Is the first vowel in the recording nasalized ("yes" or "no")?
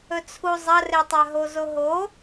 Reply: no